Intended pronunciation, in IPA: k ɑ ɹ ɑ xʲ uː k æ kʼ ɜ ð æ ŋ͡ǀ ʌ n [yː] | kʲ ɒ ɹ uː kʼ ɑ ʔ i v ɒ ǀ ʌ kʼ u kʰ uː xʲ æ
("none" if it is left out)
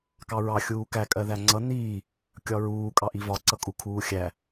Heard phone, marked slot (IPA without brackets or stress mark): iː